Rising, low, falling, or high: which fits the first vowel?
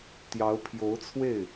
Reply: rising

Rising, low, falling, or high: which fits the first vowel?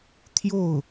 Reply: falling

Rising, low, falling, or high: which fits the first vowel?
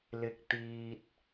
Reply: low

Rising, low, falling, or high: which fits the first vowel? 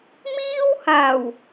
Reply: high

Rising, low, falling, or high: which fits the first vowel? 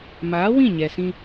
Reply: rising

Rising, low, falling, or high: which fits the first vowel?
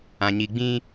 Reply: low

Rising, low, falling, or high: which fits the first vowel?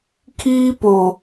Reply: high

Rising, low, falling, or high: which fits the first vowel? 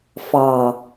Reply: low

